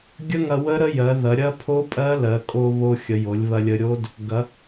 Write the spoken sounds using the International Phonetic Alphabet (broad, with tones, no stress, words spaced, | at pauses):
ɡʲə˦˥ŋɐ˧wə˦˥ ɾə˦˥jɜ˩˧ ðɐ˩˧ɾʲɐ˦˥ pʰo˦˥ pʼɜ˦˥lɜ˩˧ kʼo˧βo˧ xʲə˩˧jo˩˧lʲβɐ˧lʲə˧ ɾʲo˦˥d | ɡɐ˩˧